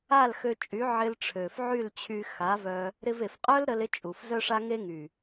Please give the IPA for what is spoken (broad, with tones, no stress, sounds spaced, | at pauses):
a˦˨ l x ø˧ t͡ʃʼ y˨˦ ʕ ɪ˧ l ʈ͡ʂʰ ø˨ f ʕ y˦˨ l t͡ɕʰ y˧ x a˨˦ v œ˧ | ɾ ɪ˧ v e˨ f qʼ œ˦ l ɾ ə˧ l ɪ˦ t͡ʃʼ u˨ f z œ˦ ʂ a˦ ŋ e˦ ŋ y˨